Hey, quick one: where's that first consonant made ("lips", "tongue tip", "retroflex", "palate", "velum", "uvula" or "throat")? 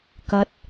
velum